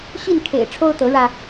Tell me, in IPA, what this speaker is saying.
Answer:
ɕi˥˨n kʰḛ˨˩ɪ̯ʈ͡ʂʰo˦ʊ̯ t̪ɤ˨˦ɻä˧

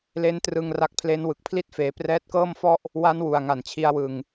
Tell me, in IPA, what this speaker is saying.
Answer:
le˦˥n trɯ˧ŋ ra˦˥k̚pʰle˦˥n wɯ˨˩k̚pʰli˦˥t̚feː˩˦ prɛː˦˥t̚kɤː˥˩mfɔ˥˩ʔ | wa˦˥nwu˨˩a̯ ŋa˨˩nt͡ɕʰi˧a̯ wɯ˨˩ŋ

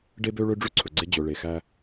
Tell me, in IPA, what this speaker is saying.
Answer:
ɖe˦bø˦ ɭø˦ɖ͡ʐʉ˦ǀʰɵ˨ɡ͡ǀe˦ d͡ʑɵ˨ɭe˨ xæ˦

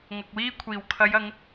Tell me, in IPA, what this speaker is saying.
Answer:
ŋɐ˨k̚wiː˥kʷʰiː˨˩w kʰɐ˨˧jɐ˨˧ŋ

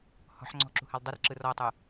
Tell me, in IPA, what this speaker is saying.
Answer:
hɔ̤ħ ŋ͡ǀɔ̤ǁṳhal dˤɯrǁɯ rɔtˤu

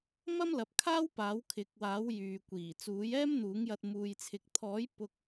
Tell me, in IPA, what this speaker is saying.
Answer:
mɐ˥mlɐ˨p̚kʰaː˥w paː˨˥wkʰɪ˨˥k̚waː˨˥w jyː˨kʷiː˨˩ t͡suː˨˥jɛː˥mn̪uː˨˥ŋjɐ˧t̚ muː˧jt͡sʰɪ˧k̚ t̪ʰɔː˨˥j pʊ˧k̚

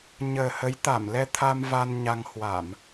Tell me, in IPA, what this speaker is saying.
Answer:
ɲəː˨˩hə˨˦jt̪a˧˩mlɛ˧ t̪ʰa˧m va˧nɲa˧ŋ hwa˧˩˨m

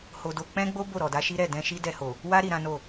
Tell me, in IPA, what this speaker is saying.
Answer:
ho˧do˧ k͡pɛ̃˦ɡ͡bo˦ bo˦˨ɾɔ˨da˧ ʃi˦ɾɛ˦˨ dɛ̃˧ʃi˦ dɛ˧ho˨ | wa˦ ɾi˧ɾã˦no˦˨

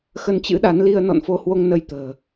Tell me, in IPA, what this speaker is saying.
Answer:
xə˧nt͡ɕɨ̰˧˥ ɗa˨˦nli˧ə̯ nɔ̰˧˨nfo˧hwo˧ŋnə˧j t̪ə̤ː˨˩

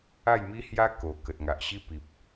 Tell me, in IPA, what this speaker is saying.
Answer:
a˥˧jmi˦hja˦ ko˨˩ kə˨t̚ŋa˨ʔ ɕi˧pi˨p̚

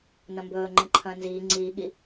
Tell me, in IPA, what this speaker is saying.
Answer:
nɐ̃mbɵː ŋ͡ǃẽǃʰɐ̃ːnziː ŋ͡ǀiː ɠi

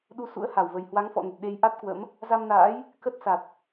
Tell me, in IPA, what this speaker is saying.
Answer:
ɗu˨˦sṵ˧˥ə̯ ha˧˩wvə˨˩j hwa˨˦ŋfɔ̰˧˨nə˨˩t̚ ɗe˧j ʔa˦˥t̚kwə̰˧˥m | za˧mna̰ː˧˥j | kə˦˥t̚sa˨˩t̚

